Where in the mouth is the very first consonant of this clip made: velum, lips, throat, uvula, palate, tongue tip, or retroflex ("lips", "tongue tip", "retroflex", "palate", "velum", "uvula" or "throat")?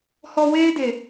throat